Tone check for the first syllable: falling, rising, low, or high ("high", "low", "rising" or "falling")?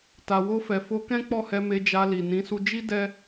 low